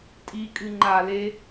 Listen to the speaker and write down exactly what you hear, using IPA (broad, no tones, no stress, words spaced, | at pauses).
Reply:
tʼi kʼɨŋ͡ǃale